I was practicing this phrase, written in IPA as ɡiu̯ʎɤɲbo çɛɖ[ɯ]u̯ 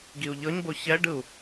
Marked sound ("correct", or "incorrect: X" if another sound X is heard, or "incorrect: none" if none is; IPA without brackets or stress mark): correct